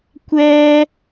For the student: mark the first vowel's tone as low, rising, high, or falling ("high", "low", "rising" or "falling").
high